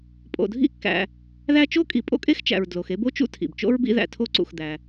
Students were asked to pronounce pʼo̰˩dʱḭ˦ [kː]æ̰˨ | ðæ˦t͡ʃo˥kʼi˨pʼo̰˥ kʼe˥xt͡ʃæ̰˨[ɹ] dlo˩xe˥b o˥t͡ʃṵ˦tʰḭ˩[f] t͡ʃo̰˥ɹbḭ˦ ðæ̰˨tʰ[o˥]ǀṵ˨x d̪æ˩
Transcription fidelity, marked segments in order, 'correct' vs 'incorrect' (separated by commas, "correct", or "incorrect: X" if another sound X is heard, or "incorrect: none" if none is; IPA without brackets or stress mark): correct, correct, incorrect: b, incorrect: o˦